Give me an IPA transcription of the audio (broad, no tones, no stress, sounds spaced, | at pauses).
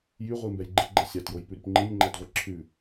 j y ʁʷ i m b ɛ j ɡ͡ǃ i ɡ͡ǃ ɛ sʲ ɑ t j o j p ʉ ɾ y p ŋ͡ǃ i nʲ ŋ͡ǃ æ d ʁʷ e ǁʰ ʉ